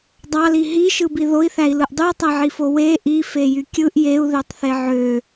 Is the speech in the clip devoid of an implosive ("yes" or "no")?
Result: yes